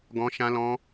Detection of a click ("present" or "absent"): absent